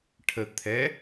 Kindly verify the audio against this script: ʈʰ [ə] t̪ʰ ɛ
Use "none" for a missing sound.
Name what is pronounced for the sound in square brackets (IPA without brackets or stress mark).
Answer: ə